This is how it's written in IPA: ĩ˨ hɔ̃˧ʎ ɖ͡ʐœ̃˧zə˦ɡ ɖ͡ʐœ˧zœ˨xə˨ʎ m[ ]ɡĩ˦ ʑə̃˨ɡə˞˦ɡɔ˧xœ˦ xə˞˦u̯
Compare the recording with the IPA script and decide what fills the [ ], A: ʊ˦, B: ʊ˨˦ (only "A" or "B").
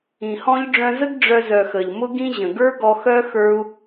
A